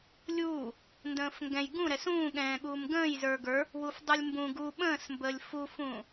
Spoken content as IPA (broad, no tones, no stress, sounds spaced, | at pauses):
lʲ uː | n d ə̃ː f ŋ ɡ ɛ̃ j ɡ ũ ɾ ɛ s ũː ɠ ɛ̃ː ɠ uː m ɡ ə̃ː j z ə˞ ɡ ə˞ | w u f dˤ u lʲ m b ũ ɡ u ɓ ə̃ː s m b əː lʲ f u f ũː